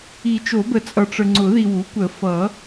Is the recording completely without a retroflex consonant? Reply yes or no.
no